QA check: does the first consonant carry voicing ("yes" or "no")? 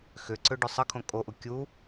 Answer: no